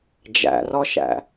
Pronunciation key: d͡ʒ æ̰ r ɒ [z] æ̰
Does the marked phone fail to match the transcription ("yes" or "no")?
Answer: yes